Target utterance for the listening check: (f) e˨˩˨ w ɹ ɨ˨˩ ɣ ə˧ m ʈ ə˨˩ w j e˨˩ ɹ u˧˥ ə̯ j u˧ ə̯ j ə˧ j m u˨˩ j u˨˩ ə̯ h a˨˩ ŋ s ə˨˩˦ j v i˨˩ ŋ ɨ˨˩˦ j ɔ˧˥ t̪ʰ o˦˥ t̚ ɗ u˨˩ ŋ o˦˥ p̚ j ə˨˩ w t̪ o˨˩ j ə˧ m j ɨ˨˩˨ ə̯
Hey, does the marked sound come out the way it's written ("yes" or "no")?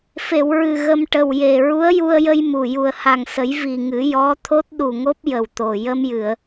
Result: yes